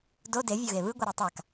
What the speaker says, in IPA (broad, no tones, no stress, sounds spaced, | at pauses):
d o d e vʲ o ɣ e β ɯ ɡʷ ʌ ɾ ɛ tˤ a k